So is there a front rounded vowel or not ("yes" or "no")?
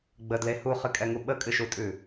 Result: no